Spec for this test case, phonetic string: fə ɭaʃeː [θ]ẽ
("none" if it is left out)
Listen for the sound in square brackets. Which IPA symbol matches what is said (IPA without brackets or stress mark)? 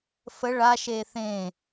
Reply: θ